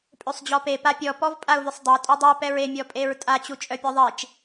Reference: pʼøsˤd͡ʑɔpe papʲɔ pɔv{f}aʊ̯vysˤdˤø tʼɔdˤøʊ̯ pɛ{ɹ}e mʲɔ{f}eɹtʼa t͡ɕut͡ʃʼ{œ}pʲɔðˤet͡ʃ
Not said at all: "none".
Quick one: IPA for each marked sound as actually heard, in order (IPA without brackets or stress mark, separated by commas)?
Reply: pʼ, ɹ, pʼ, œ